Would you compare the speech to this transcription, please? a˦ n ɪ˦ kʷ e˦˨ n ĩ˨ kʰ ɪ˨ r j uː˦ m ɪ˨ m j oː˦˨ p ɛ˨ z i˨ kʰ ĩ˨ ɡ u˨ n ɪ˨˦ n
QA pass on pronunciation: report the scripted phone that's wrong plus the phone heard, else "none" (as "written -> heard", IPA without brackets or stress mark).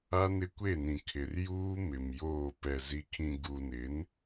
none